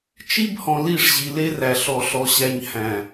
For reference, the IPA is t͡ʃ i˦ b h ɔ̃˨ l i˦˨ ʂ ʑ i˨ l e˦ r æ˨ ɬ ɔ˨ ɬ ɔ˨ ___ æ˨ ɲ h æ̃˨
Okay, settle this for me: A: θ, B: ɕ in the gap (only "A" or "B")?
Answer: B